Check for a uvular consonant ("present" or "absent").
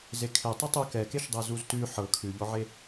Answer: absent